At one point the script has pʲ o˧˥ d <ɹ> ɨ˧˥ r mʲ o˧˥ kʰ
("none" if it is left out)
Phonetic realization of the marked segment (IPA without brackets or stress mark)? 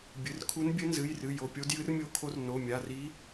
j